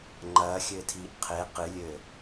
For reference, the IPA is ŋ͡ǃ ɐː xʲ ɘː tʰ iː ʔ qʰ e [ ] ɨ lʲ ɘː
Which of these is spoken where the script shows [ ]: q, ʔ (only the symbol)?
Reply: q